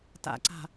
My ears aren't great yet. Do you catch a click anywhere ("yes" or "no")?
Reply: yes